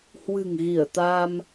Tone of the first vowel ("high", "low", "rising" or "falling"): low